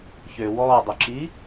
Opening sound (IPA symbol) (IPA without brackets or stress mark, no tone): ç